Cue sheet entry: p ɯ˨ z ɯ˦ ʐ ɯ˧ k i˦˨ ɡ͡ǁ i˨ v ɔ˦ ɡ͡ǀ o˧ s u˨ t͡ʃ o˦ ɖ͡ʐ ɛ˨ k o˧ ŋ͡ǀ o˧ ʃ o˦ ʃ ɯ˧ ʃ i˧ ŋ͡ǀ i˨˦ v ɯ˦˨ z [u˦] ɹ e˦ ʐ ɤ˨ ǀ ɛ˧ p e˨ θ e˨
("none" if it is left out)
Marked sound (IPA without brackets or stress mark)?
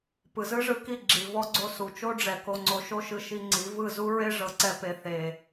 u˦